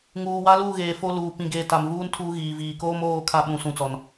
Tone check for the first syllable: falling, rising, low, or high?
low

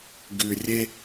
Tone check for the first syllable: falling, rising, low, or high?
low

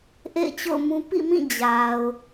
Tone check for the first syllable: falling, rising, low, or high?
falling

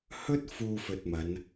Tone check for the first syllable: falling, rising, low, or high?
high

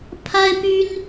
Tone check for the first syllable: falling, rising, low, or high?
high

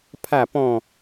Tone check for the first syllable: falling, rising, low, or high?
falling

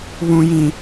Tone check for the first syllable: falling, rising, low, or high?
low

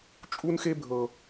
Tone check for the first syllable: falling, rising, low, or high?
high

